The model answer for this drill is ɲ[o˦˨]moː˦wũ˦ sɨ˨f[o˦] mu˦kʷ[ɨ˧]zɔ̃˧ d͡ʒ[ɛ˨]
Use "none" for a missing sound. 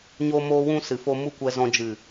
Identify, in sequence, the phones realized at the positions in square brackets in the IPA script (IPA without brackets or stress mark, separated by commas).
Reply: o˦, o˦, ɛ˧, ɨ˨